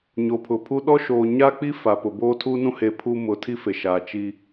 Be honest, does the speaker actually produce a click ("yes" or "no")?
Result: no